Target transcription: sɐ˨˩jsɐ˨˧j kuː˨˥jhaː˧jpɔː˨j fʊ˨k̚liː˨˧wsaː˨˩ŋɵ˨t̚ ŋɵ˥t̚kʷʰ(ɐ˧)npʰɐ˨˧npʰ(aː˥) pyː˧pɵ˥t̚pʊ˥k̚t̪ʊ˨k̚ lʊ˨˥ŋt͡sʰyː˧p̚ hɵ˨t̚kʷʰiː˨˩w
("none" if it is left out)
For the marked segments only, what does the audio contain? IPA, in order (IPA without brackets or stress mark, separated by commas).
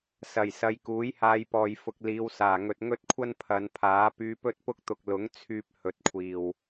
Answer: ɐ˥, aː˨˥